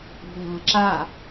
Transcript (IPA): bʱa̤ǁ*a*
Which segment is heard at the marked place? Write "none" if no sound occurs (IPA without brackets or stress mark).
a